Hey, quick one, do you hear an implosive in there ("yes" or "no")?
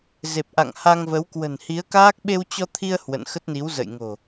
yes